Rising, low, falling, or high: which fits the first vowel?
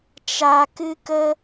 low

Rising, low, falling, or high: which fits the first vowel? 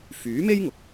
rising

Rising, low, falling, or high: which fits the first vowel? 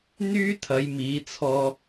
high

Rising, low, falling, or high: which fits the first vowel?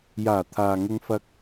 low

